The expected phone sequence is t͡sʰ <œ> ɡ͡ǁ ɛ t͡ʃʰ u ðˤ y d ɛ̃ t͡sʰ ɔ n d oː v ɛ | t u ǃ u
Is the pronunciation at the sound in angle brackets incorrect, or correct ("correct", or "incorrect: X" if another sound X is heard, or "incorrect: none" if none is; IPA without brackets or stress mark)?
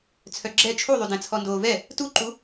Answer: correct